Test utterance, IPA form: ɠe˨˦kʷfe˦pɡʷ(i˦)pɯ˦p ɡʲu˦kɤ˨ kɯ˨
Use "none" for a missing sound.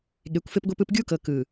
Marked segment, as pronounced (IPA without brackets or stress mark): i˦